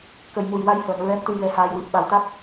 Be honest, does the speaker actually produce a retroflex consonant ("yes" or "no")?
no